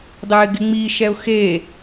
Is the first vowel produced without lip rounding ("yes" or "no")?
yes